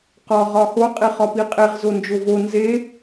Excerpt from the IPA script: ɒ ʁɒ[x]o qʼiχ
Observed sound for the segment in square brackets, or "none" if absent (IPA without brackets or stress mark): x